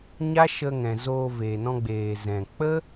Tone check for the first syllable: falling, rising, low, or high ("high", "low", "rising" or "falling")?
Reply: high